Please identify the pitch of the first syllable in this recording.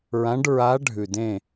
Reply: rising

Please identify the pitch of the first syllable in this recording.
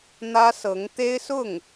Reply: high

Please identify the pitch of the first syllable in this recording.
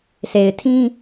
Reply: low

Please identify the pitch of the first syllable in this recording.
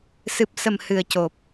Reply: low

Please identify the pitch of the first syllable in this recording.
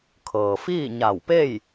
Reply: low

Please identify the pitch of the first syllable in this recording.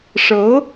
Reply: rising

